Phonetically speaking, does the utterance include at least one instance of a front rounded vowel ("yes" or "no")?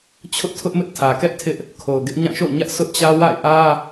no